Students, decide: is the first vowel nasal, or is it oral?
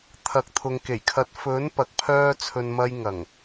oral